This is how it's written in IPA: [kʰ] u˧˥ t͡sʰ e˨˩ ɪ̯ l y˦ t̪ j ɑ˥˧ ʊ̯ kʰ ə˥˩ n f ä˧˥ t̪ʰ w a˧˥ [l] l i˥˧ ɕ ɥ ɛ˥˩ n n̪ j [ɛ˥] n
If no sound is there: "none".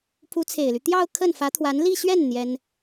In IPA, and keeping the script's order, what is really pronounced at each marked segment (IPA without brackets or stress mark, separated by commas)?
pʰ, n, ɛ˥